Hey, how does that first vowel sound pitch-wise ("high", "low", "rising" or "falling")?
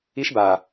high